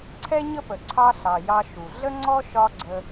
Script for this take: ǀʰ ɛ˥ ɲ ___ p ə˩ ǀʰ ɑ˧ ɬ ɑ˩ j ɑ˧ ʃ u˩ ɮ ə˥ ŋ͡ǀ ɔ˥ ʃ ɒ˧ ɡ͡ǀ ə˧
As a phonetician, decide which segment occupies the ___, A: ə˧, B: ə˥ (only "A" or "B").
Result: B